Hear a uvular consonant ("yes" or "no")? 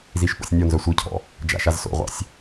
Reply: yes